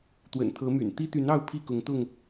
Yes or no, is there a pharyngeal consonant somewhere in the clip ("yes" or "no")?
no